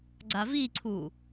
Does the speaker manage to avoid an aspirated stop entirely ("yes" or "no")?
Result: no